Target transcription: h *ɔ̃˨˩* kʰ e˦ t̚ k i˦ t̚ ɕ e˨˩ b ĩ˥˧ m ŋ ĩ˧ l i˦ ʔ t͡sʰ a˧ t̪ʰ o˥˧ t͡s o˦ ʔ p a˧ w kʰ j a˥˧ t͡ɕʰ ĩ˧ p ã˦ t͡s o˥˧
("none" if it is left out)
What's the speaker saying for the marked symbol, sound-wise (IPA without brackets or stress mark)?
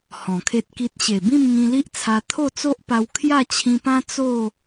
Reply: ɔ̃˨˩